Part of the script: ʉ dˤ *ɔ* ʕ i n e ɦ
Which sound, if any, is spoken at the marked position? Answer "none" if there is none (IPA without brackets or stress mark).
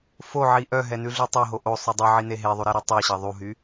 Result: ɵ